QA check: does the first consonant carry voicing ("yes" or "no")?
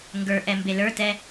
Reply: yes